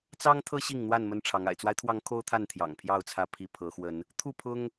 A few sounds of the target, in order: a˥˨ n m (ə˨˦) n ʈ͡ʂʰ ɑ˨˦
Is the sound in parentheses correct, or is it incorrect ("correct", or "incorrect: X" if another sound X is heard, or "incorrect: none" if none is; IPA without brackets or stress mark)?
incorrect: ə˦